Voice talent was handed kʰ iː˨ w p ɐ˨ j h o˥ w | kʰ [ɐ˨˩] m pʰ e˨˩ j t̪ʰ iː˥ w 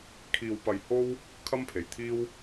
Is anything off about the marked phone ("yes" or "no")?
yes